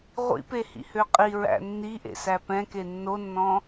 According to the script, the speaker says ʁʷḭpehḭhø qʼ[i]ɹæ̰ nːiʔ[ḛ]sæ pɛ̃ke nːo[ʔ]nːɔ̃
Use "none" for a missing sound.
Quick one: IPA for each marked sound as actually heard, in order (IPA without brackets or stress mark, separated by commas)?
i, ḛ, none